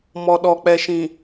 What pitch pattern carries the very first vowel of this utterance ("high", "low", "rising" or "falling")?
low